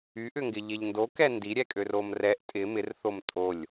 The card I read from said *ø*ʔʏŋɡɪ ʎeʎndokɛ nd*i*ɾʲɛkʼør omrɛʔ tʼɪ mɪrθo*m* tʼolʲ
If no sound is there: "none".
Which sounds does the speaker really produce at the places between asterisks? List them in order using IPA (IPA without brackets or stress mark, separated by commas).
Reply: y, i, m